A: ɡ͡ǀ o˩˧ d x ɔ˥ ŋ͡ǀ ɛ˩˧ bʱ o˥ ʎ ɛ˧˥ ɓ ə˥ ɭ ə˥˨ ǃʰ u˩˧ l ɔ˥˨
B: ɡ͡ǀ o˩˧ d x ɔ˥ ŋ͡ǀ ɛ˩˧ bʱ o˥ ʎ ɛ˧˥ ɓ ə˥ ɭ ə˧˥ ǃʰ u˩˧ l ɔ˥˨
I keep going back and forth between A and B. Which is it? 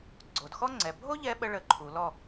B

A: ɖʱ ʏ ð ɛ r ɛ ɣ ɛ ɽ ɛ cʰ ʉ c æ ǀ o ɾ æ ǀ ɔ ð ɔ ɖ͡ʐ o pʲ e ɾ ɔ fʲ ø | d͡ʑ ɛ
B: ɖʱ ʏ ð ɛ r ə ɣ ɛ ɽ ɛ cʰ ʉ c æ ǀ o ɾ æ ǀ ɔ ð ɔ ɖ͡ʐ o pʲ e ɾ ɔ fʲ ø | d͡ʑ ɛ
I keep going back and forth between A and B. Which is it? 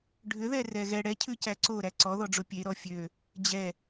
A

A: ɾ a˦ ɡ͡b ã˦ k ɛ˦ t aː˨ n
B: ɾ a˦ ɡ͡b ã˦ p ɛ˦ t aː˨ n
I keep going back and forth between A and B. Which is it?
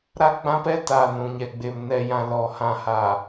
B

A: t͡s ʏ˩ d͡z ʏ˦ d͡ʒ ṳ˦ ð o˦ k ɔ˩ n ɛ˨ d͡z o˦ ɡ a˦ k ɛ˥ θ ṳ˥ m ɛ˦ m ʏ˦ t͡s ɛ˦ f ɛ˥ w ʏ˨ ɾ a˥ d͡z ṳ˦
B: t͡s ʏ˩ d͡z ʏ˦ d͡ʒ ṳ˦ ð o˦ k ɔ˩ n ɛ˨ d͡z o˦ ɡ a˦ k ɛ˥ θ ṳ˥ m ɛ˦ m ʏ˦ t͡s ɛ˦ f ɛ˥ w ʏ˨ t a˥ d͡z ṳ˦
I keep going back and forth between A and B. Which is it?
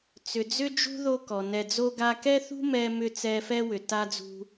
B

